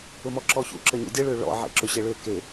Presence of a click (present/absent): present